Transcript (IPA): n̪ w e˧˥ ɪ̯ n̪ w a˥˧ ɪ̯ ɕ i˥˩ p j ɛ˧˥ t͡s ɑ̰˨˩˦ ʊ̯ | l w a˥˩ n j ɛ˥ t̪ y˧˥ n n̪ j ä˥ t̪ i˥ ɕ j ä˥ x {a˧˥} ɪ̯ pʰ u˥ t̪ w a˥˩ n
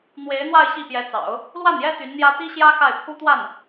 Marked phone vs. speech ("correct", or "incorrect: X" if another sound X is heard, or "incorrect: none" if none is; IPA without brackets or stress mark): incorrect: a˥˩